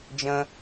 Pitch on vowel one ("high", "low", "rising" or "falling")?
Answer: high